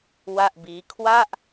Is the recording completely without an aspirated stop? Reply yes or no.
no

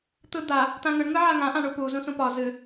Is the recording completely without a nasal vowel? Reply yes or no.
no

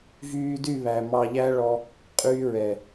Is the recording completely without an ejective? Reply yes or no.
no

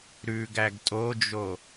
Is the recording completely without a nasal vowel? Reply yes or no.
yes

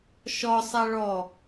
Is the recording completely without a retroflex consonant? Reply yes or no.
no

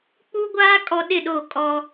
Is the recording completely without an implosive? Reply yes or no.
no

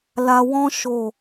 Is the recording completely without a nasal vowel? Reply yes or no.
no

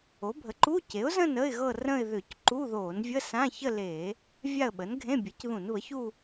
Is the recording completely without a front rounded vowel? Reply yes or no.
no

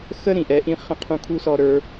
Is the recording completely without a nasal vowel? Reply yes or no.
no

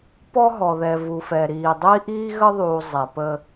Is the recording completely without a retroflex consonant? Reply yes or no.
yes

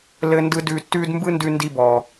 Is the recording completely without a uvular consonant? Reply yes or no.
yes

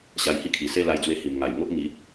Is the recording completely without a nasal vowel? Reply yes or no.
yes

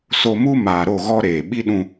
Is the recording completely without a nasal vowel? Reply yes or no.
no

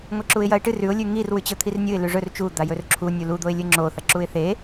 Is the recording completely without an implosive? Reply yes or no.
yes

